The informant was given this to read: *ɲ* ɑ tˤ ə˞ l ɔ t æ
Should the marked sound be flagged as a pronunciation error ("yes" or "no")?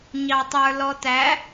no